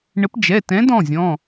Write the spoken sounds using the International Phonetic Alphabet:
ɳ ə˨˥ p d͡ʒ ɛ˩˧˩ t ɛ̃˨˥ d ɔ̃˩˧˩ zʲ ɔ̃˩˧˩

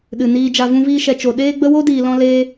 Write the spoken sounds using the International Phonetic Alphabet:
ɗ ɨ˨ n iː˨ d͡ʒ a˨ v ũ˧ v iː˧ ʃ ɛ˨ t͡ʃ o˨ ɗ eː˦ ɡ͡b ə˦ w o˦ d iː˨ l ɔ̃˧ l eː˦

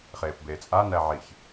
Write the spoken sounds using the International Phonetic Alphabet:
χ eː p b eː t͡sʼ a n æ ʕ i ç

